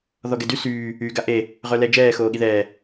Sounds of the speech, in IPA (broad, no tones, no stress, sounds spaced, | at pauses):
ð ɔ ɡ ɛ d y s yː | y ɡ a ʔ e | ʁ œ l ɛ d͡ʒ ɛː x oː ɠ i ð ɛː